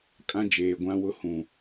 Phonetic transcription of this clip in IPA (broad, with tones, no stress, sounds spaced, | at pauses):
kʼ ã˦ d͡ʒ eː˨ ɡʷ ã˦ w ʊ˦ h ũ˨